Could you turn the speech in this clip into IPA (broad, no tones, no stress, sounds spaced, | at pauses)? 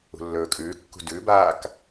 ṳ lː ɵː kʼ ʉː kː ṳ d ʉ b aː k